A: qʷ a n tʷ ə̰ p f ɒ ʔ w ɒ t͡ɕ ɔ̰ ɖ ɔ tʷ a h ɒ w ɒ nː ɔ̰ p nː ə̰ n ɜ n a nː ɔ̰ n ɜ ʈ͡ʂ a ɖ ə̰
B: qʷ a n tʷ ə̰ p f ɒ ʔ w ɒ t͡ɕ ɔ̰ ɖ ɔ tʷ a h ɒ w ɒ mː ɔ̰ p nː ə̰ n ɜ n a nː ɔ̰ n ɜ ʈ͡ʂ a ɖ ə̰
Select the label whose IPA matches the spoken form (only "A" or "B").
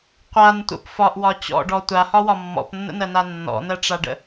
B